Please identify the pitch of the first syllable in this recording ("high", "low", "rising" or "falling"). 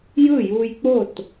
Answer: falling